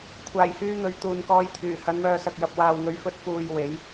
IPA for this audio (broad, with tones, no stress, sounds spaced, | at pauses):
kʷʰ aː˨˩ j h yː˧ n̪ ɵ˨ ɥ t̪ uː˨ n k ɔː˧ j t̪ʰ yː˨˩ h ɐ˨˧ n m œː˨ s ɐ˨ k̚ j ɐ˨ p̚ w aː˨ w ŋ ɵ˨˥ ɥ f ɵ˨˥ t̚ f uː˨ j w e˨˥ j